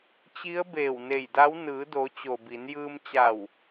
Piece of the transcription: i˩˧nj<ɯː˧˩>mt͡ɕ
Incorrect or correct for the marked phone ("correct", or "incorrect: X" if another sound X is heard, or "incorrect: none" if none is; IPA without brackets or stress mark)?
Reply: incorrect: ɯː˧